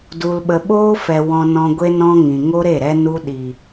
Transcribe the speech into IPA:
d u˧ l ɓ ə˧ ɓ oː˧ f ɛ˨ w ɔ̃˧ n ɔ̃˧ ɡʷ e˦ n ɔ̃˧ ŋ ĩ˨ ŋ o˧ ɾ e˦˨ ɾ ɛ˧ n u˧ ɗ i˨

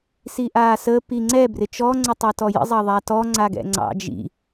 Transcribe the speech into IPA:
s iː ʔ aː s əː p i ŋ͡ǀ ɛ b r ɪ t͡ʃ ɔ ŋ͡ǀ ə tˤ ɛ t ɔ j ə̰ zˤ ɑ ðˤ a t ɔ ŋ͡ǀ a ɡ ɛ̰ ŋ͡ǀ ɑ̰ d͡ʒ ḭ

